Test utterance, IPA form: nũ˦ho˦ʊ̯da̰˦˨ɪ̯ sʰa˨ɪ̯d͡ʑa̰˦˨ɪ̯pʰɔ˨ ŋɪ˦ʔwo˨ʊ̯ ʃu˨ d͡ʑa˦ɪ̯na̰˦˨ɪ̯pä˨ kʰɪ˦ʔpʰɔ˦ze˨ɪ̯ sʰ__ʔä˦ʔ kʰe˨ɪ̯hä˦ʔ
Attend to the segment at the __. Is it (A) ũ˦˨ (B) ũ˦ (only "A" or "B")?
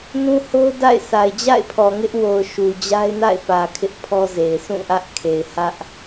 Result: A